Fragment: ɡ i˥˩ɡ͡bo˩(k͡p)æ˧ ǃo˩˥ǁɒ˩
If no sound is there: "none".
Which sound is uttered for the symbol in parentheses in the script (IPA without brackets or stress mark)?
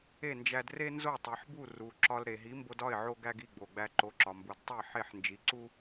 ɡ͡b